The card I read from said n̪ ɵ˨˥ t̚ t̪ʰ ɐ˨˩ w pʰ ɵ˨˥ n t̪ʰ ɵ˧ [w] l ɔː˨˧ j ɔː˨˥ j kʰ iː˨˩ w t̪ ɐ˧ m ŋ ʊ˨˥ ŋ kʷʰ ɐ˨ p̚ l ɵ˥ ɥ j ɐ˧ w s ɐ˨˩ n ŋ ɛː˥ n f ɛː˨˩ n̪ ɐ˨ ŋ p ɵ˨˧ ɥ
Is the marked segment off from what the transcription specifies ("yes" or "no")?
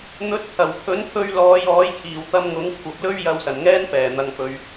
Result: yes